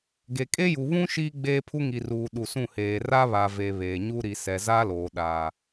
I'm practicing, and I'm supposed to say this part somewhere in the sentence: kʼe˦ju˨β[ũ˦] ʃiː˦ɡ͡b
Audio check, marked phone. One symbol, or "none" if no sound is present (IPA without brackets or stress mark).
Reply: ũ˦